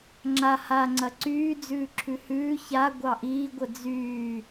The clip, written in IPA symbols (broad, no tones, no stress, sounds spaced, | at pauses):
ŋ͡ǁ a h a ŋ͡ǀ ɐ ǀ yː d͡z ʉː ǁʰ ʉ h ʉː ç a ɡʷ ɑ ʔ iː ɡʷ ə d͡z yː